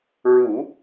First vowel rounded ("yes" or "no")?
yes